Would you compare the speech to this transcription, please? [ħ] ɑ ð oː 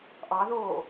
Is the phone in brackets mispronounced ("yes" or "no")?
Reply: yes